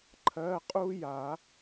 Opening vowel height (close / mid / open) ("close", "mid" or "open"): mid